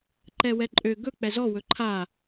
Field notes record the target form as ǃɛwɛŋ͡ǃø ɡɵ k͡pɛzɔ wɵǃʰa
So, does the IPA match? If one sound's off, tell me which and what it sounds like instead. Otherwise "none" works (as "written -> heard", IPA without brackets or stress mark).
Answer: ŋ͡ǃ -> ǃʼ